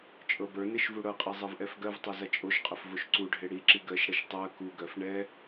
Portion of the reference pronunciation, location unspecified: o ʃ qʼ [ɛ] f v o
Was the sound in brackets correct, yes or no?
no